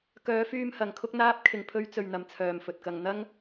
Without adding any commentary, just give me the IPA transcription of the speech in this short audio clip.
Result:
k œː˨˧ f yː˧ m h ɐ˨ ŋ kʰ ʊ˥ k̚ n̪ aː˥ p̚ kʰ ɪ˨ ŋ pʰ ɵ˧ ɥ t͡s ɵ˨ ɥ n̪ ɐ˨ m t͡sʰ œː˨ m f ɵ˨ t̚ k ɐ˧ ŋ n̪ ɐ˥ ŋ

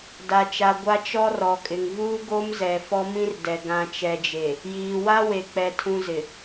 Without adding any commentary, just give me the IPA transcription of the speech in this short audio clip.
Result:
d a˨ t͡ʃ a˨ ɡʷ a˦ t͡ʃ ɔ˦ r ɔ˨ kʼ ɪ˨ ŋ v uː˦ ɡ o˦ m z ɛ˨ f ɔ˦ m ĩ˦ r d ɛ˨ ɡ ã˨ t͡ʃ ɛ˨ d͡ʒ e˨ | j iː˨ w a˦ w e˨ k͡p ɛ˨ tʰ ũ˨ z ɪ˨

